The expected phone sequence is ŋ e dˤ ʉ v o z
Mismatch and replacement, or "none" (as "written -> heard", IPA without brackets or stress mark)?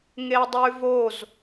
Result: none